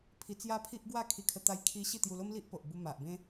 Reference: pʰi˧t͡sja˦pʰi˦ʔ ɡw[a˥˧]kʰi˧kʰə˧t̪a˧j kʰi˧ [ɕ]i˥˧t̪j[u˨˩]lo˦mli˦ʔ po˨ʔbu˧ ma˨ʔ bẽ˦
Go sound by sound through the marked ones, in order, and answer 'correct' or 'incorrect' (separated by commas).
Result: correct, correct, incorrect